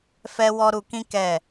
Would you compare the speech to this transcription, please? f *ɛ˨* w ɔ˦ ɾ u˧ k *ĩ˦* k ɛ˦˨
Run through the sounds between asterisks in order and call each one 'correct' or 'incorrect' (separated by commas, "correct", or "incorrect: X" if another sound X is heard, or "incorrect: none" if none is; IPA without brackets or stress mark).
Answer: incorrect: ɛ˦, correct